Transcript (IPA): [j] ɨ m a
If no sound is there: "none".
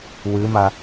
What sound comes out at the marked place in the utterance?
w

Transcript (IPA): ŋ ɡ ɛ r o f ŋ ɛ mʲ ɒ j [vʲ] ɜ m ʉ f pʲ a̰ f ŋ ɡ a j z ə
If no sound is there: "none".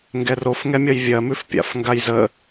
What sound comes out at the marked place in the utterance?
vʲ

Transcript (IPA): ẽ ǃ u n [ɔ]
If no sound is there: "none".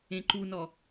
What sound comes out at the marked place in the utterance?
ɔ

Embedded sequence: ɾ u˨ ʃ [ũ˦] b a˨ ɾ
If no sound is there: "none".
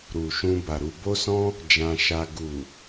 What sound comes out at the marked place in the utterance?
ũ˧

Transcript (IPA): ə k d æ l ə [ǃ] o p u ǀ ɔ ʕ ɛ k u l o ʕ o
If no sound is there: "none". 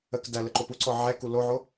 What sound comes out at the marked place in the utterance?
ǃ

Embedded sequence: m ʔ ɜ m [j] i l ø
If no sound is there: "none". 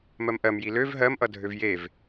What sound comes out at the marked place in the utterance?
j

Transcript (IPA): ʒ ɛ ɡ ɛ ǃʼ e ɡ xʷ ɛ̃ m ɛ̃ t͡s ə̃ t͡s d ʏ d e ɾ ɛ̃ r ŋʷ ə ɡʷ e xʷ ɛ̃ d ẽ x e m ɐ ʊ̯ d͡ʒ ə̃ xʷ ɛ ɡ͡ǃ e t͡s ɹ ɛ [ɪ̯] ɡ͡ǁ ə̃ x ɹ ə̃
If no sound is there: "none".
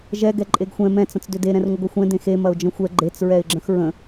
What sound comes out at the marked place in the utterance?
ɪ̯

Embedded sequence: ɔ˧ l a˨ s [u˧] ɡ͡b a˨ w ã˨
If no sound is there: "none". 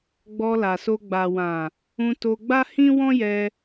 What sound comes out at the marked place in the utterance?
o˧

